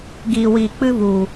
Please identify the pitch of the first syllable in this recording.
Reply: low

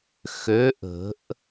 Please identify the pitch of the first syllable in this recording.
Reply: rising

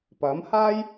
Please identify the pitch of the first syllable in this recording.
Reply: rising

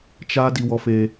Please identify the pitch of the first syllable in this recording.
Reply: high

